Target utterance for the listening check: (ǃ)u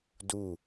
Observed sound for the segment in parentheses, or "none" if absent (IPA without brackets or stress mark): d